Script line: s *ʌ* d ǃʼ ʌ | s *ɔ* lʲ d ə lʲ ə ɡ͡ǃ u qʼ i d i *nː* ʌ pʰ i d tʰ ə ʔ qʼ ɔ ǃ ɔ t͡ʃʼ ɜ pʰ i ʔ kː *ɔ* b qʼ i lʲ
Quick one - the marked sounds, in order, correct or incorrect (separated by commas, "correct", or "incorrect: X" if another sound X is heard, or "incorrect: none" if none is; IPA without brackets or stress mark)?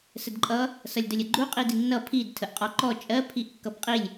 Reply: incorrect: ə, incorrect: ʌ, correct, incorrect: ʌ